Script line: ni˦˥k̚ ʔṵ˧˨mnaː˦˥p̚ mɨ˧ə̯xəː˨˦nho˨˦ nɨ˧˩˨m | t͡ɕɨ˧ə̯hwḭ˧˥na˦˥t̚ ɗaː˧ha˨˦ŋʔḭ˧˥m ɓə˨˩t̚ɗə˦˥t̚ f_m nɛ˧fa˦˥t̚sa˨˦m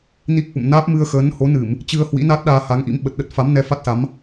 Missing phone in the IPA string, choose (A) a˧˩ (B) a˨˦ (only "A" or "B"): B